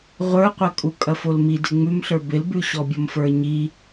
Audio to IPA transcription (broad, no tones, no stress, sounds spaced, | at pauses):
ʁʷ ə˞ qʷ ɐ kʼ u kʼ ɐ f o l m i d ɪ ŋ͡m ʉ m ɬ ə˞ b ɪ l b ʉ ɕ ɔ bʲ ɔ m f ə˞ ɲ i